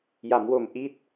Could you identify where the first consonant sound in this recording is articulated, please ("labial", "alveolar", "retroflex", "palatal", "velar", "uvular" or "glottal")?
palatal